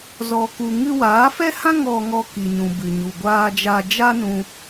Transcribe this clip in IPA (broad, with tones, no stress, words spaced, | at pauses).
zɔ˧ku˧ ŋɨ˧waː˨˦fɛ˦hã˦ ŋɔ˧ŋɔ˧ ki˨ɲũ˨ bɨ˨ɲu˨ɡʷaː˧d͡ʒa˧ d͡ʒa˦nũ˧